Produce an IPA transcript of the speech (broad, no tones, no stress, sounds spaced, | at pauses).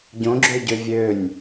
ɟ õ ɡ͡ǁ ø ɟ ø vʲ ø nʲ